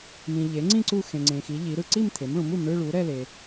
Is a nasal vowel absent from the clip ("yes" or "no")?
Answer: no